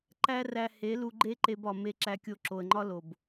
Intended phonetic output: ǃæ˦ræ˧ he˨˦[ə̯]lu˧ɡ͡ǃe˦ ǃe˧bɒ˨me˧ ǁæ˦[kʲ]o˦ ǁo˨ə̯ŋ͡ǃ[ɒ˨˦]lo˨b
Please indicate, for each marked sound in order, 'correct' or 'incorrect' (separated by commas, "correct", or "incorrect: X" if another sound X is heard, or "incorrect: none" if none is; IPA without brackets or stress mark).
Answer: incorrect: none, correct, incorrect: ɒ˦